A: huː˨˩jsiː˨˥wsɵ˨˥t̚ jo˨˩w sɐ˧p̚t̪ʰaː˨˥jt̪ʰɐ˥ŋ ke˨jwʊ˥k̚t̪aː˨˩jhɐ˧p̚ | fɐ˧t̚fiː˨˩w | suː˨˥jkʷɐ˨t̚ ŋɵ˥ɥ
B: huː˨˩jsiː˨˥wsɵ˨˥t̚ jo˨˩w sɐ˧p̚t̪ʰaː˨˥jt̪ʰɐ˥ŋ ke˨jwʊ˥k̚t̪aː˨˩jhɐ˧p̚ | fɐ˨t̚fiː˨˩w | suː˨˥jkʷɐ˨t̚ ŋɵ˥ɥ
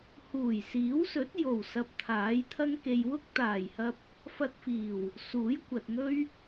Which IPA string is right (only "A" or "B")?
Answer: A